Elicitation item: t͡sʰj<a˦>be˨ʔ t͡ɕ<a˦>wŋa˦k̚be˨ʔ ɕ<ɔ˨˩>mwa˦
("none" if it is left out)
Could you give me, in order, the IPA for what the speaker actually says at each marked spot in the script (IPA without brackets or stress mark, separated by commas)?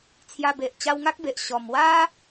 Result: a˧, a˧, ɔ˨˩